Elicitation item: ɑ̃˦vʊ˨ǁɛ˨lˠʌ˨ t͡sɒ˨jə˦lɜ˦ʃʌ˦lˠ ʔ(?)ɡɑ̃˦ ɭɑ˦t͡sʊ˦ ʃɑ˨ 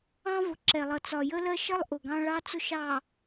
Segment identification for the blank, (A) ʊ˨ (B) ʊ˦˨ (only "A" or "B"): A